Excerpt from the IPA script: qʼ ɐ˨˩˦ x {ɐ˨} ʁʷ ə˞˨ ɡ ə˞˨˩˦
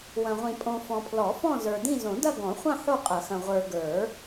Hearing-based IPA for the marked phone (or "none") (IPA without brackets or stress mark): ɐ̃˨